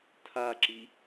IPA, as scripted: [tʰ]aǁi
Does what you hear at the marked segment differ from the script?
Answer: no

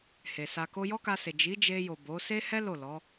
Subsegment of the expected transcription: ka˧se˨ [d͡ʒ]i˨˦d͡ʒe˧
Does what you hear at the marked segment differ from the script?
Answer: no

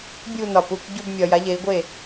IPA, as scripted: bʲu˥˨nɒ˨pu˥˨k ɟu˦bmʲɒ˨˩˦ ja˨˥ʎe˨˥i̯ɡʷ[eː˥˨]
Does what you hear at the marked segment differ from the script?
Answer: yes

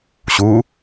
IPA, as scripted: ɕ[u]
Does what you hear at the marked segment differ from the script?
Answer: no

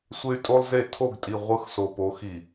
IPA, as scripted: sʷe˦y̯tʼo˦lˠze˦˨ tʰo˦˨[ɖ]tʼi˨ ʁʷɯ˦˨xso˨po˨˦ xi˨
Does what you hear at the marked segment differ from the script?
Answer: yes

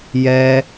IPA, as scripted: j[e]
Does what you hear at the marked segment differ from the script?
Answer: yes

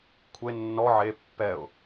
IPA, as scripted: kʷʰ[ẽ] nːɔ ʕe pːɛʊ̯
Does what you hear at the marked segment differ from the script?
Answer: yes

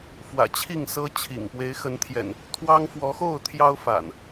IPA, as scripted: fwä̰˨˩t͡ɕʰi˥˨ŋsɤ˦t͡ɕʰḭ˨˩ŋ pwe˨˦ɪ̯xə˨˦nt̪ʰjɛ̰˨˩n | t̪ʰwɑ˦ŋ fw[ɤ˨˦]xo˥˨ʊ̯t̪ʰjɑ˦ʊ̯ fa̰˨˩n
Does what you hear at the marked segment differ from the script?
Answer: yes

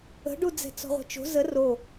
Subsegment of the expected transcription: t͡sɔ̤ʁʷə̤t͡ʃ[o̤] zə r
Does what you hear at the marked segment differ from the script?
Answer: no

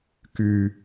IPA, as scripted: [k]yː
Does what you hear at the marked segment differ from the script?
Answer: no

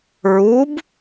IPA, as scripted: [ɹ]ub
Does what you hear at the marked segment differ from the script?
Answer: no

